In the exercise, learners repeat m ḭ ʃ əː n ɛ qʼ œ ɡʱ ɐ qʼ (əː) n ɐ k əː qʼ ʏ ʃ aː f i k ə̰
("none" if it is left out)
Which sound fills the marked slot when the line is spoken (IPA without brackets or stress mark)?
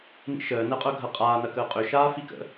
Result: aː